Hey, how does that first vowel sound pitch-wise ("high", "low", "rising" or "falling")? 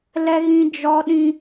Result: high